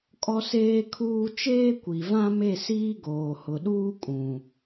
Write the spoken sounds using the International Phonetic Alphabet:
kʼɔ˦seː˦kʰuː˦ t͡ʃeː˦kʷi˨vã˦me˦˨ siː˦ɡoː˨hʊ˨ɗuː˦ kʼũ˨

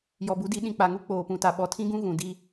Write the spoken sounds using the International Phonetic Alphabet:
jɔ˨bu˨˦di˨˦ ɗĩ˨k͡pa˨ŋu˦ k͡poː˨pũ˨ ta˨ɓɔ˨tʰĩ˦ ɡũ˦ ɣũ˨di˦

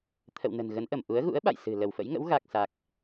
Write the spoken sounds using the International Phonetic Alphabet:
t̪ʰə̰˧˨wnə̤˨˩n ɣə˨˦nʔə˧˩m ʔu˨˦ə̯ɣṵ˧˥ə̯ɓa̰˧˨j sɨ̤˨˩ lə˧˩wfə̰˧˥jŋə̰˧˥w ɣa˨˩k̚sa˨˩k̚

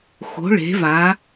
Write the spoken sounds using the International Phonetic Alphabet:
xo̤˩˧ɭe̤˩˧va˩˧

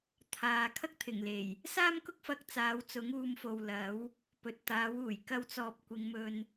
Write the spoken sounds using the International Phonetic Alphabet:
t̪ʰaː˨ kʰɐ˥k̚t̪ʰɪ˨˩ŋle˨˩j | saː˥mkʊ˥k̚fɐ˧k̚ t͡saː˨˧wt͡sʊ˨˥ŋ uː˨˧mfo˨w lɐ˨˥w | pɵ˨t̚t̪aː˨˥wuː˨˩j kɐ˧wt͡sɔː˨p̚ kʷɪ˨˧ŋmɵ˧n

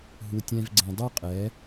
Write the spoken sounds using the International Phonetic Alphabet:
ɦu˧tʲɛ̃˦vɡ͡ǀẽ˧ dˤy˦qʼɛ˨˦

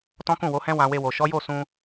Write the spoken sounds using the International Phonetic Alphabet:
tɔ̃˦kũ˦˨wo˨˦hɛ̃˦ wã˧we˧wo˨ ʃɔ˨˦jo˦˨ sũ˧

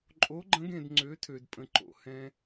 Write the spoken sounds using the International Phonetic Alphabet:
ǃʼo˧˥ɡ͡ǃə̃˧˥ɡẽ˧d ŋ͡ǀø˧˥tʰø˧dpʼə̃˧ ǃo̰˧ hɛ̃˧

